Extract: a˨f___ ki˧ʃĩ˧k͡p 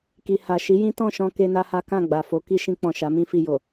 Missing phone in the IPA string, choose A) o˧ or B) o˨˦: B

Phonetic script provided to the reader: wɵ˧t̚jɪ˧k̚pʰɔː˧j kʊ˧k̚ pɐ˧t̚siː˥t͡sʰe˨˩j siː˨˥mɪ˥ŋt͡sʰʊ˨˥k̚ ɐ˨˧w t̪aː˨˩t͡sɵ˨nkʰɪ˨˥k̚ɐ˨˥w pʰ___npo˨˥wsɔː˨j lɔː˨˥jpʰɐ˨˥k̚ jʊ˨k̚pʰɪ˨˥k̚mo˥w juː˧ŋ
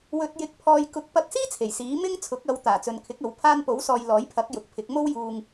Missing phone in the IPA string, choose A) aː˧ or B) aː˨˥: A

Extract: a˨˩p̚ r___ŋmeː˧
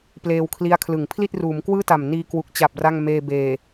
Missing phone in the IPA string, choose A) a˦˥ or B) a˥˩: B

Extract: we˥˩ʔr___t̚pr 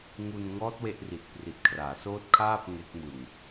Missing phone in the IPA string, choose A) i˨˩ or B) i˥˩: A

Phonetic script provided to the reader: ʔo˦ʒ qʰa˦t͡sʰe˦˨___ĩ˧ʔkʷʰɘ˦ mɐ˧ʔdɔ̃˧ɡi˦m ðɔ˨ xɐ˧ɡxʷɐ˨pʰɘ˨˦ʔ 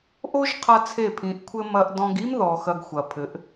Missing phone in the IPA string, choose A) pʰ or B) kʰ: A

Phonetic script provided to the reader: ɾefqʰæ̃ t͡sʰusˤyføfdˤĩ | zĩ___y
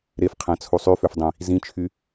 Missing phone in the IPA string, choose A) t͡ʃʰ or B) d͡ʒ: A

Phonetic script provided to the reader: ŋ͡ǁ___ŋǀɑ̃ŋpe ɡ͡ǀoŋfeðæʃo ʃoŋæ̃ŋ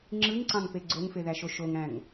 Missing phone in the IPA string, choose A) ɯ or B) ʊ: A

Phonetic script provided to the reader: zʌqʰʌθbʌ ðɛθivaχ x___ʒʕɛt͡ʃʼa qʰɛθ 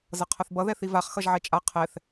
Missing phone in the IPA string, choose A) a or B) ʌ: B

